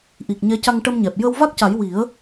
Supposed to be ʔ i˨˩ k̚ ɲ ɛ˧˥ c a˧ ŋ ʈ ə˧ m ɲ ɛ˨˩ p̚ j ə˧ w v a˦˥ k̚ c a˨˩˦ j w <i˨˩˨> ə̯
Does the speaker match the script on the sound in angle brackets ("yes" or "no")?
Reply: no